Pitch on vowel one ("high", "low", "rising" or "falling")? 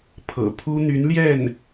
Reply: low